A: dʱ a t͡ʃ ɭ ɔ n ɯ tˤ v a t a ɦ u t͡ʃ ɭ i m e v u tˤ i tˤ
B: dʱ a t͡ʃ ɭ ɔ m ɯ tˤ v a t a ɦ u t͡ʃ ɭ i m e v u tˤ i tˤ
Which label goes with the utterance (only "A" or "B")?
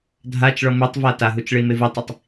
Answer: B